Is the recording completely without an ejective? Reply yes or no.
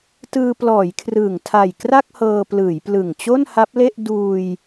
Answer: yes